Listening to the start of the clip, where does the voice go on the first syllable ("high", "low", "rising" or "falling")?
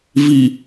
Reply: low